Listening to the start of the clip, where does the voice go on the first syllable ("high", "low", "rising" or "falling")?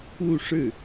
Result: falling